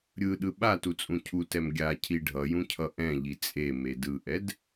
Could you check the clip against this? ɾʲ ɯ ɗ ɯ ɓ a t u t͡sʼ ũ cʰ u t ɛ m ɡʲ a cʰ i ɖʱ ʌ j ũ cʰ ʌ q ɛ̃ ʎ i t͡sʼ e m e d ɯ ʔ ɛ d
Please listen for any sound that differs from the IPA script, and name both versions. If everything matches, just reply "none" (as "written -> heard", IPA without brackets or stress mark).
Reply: q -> ʔ